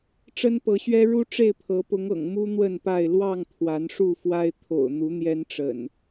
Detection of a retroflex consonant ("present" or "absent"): present